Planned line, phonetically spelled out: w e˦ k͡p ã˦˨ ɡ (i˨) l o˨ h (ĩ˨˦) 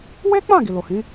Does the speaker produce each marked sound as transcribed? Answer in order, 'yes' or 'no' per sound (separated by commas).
yes, yes